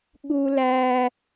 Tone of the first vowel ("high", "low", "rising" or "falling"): high